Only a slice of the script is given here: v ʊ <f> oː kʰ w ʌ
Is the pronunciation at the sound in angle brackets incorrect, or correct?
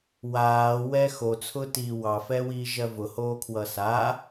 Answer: incorrect